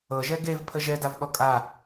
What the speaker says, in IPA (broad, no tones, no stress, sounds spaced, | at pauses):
ɤ ʒ ɛ ɡ e v pʰ ə ʒ ɛ d a v ɠ ɔ kʼ a